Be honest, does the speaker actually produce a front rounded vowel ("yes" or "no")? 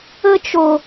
no